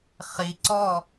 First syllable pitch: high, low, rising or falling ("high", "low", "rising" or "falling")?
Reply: low